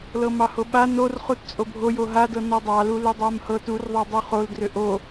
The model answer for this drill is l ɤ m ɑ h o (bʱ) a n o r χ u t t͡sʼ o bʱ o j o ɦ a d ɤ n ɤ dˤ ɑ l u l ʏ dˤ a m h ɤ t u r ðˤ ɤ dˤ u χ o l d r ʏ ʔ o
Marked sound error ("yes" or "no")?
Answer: yes